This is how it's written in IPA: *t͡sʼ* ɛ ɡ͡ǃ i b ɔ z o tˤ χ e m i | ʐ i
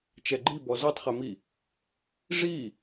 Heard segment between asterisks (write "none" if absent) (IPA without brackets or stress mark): t͡ʃ